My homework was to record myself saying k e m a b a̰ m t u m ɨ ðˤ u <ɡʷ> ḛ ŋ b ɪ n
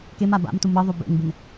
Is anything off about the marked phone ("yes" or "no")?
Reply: yes